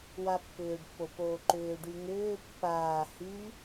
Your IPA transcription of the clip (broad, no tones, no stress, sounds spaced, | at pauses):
w a pː ʏː ɖ pː o p oː ǃ ʏː ɖ y ŋ ʏː pː aː h y